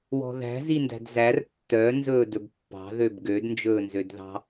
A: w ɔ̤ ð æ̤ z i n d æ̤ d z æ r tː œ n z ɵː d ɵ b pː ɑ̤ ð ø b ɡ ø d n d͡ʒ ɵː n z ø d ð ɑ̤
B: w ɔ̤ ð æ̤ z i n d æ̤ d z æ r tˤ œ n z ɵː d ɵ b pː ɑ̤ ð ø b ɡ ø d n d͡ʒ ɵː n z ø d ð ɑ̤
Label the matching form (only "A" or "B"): A